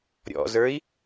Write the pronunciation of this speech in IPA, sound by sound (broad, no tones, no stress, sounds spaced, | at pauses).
ɾʲ ɔ̰ z ə˞ i̯